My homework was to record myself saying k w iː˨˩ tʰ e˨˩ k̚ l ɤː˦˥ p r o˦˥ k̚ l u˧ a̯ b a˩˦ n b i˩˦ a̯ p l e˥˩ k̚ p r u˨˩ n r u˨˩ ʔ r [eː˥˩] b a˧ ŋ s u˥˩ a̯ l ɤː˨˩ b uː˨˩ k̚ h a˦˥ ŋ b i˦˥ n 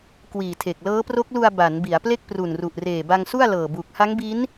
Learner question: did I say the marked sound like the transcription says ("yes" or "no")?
no